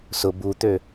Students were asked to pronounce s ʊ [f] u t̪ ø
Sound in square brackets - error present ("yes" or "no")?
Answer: yes